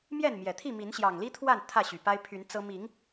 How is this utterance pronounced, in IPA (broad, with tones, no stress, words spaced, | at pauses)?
mjɛ˥˨nmjɛ˨˩t̪ʰi˥˨mi˨˦n ɕjɑ˨˩ŋli˦t̪ʰwa˥˨n t̪ʰä˥˨ɕy˨˩pa˦ɪ̯ pʰy˨˦nt͡sɤ˦ mi˨˦ŋ